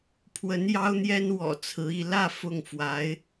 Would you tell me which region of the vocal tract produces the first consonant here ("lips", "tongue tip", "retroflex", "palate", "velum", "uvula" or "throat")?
lips